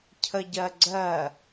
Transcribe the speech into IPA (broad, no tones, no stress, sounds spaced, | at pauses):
cʰ ə ɟ ɜ ɡ͡ǀ ɜ